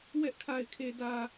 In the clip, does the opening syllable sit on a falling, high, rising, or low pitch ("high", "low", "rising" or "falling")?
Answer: high